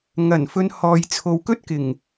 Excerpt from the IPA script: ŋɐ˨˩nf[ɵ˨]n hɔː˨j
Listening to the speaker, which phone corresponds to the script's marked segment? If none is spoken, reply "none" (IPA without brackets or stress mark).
ɵ˧